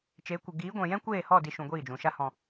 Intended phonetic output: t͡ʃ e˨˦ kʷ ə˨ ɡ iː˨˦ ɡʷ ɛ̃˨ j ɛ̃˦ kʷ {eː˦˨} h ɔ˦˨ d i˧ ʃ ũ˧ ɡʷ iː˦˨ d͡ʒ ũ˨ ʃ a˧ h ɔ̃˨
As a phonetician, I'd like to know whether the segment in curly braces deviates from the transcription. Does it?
no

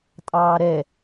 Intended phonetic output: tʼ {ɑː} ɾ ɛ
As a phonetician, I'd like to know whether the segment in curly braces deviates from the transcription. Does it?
no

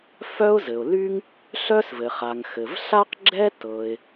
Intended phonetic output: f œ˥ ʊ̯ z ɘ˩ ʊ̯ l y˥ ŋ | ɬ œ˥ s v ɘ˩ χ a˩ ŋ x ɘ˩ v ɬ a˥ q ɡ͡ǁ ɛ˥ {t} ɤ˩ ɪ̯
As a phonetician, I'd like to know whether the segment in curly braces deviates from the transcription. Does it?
no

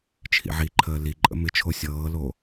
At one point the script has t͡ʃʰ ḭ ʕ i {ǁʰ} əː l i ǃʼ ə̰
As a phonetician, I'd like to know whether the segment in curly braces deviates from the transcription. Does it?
yes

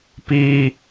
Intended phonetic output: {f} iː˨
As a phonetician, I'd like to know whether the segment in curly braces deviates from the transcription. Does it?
yes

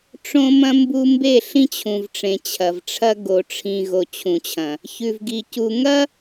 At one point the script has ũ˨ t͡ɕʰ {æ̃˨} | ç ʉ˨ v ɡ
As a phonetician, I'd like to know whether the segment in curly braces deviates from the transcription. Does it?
yes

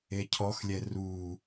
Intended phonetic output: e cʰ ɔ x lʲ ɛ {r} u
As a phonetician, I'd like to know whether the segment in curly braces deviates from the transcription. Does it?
no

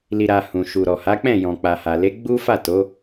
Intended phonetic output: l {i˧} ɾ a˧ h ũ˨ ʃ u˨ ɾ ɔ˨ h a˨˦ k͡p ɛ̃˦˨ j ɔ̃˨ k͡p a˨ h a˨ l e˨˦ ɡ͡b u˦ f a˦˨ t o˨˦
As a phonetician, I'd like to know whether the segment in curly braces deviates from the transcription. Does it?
no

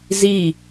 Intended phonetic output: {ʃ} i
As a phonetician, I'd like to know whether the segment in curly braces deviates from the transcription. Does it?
yes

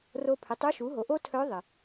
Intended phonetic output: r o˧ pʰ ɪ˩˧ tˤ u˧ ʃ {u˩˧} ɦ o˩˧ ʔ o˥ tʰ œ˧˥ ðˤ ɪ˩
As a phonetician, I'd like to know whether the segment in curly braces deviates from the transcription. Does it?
no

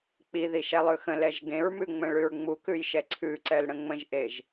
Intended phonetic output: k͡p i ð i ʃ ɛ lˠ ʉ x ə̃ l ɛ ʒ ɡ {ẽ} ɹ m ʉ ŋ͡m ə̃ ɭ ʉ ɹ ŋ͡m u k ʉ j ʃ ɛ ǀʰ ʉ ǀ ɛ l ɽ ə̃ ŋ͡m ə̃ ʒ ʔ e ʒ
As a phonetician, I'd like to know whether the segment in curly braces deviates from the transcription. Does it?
no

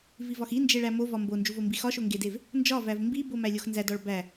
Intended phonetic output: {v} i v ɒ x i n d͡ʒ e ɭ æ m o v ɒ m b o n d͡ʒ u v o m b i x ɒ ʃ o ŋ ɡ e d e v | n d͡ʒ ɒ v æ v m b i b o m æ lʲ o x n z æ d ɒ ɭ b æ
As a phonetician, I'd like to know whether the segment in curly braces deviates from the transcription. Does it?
no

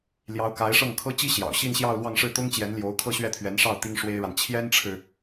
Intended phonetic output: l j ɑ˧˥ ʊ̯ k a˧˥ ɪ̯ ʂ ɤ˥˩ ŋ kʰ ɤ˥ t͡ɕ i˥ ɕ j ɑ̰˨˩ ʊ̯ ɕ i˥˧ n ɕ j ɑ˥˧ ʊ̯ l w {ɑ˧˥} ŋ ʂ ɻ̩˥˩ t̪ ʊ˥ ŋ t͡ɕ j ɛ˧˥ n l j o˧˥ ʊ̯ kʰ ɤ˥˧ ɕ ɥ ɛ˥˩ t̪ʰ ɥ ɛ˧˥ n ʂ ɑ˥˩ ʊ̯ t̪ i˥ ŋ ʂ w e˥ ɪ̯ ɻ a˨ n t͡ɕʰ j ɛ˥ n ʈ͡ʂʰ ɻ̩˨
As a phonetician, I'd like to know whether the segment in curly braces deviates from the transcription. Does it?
yes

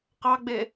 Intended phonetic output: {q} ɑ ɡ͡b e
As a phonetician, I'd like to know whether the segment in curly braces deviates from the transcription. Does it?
no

